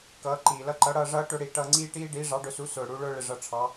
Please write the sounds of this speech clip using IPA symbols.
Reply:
k ʌː˨˥ ǃ iː˨˩ l ʌ˦˨ ǃ ʌ˨˥ ɽ ʌː˦˨ ʐ ʌː˥ ʈ ʊ˦˨ ɽ i˨˩ ʈ ʌː˦˨ ŋ͡ǀ iː˥ ʈ iː˥ ɖ iː˨˥ ʐ ɑ˨˥ ɖ ʊ˨˥ s u˨˥ s ʊː˨˩ ɽ u˨˥ ɭ ʊː˥ ɭ ɪ˦˨ ʐ ʌ˦˨ ʈ͡ʂʰ ɑ˨˥

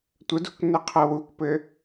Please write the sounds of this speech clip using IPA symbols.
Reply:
tʷ ə d ṳ k n ɘ qʰ ɤ w u k p ɘ

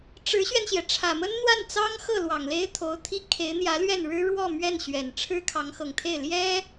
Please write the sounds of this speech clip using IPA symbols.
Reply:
ʈ͡ʂ ɻ̩˧˥ ɕ ɥ ɛ˧ n ɕ j ɛ˩ ʈ͡ʂʰ ä˨˩ m ə˥ n n̪ w a˥˩ n t͡s ɑ˥ ŋ x ɤ˥˩ l w ɑ˨˩ ŋ l e˥ ɪ̯ t̪ʰ o˧˥ ʊ̯ t̪ʰ i˥ kʰ e˧˥ ɪ̯ n̪ j ä˧˥ l ɥ ɛ˥˩ n ɻ ɻ̩˥ ɻ w ɔ˥˧ m ɥ ɛ˥˩ n ɕ ɥ ɛ˨˩ n ʈ͡ʂʰ ɻ̩˥ kʰ ɑ˧˥ ŋ x ɤ˨˩ ŋ t̪ʰ e˥˩ ɪ̯ l j ɛ˥

